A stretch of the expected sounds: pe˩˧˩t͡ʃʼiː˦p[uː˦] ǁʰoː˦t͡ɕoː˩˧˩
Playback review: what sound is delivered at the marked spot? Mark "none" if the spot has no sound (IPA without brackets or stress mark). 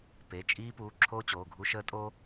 uː˩˧˩